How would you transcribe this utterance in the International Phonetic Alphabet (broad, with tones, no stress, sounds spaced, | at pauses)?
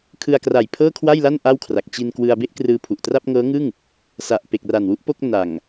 kʰ ɯ˧ a̯ k r a˨˩ j pʰ ɤː˥˩ kʰ w a˥˩ j l a˥˩ n ʔ a˥˩ w kʰ r a˨˩ k̚ t͡ɕ i˧ n k w ɯ˧ a̯ b e˥˩ ʔ k r ɯː˧ pʰ u˨˩ ʔ t r a˥˩ p̚ ŋ ɤː˦˥ ŋ ɯ˥˩ ŋ | s a˨˩ ʔ p e˨˩ k̚ r a˨˩ n w u˥˩ ʔ p o˥˩ k̚ n a˨˩ ŋ